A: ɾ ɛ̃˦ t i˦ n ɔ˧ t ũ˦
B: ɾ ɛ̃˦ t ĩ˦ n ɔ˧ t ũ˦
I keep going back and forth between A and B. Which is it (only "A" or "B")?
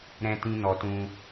B